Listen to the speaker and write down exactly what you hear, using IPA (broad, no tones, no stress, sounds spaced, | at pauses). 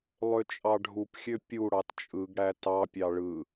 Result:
lˠ ø t͡ʃʼ ɑ ɖʱ u p xʲ ø pʲ u ɽ ɑ t t͡ʃʼ ɯ ɡ ɽ æ t ɑ pʲ ɑ ɭ ɯ